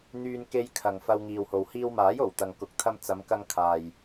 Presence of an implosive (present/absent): absent